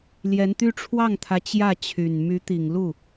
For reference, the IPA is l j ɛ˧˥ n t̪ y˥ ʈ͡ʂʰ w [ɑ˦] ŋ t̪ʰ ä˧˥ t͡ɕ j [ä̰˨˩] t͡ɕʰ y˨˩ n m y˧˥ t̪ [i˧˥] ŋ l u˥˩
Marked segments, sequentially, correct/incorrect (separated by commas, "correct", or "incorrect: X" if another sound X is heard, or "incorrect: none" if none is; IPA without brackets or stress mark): incorrect: ɑ˥˩, incorrect: ä˥˩, incorrect: i˨˩